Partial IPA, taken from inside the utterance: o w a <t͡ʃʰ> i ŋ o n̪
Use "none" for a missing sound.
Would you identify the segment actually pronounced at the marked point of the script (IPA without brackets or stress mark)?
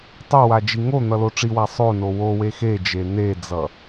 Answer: d͡ʒ